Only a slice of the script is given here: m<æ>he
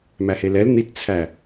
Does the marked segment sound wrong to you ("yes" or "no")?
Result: no